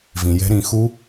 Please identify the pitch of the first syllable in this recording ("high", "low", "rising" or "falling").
low